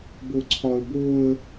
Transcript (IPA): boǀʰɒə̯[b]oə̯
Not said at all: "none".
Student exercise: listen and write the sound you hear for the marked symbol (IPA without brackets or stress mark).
b